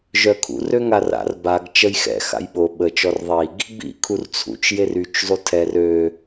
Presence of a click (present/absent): absent